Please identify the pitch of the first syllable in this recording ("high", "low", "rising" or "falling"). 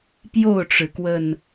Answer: falling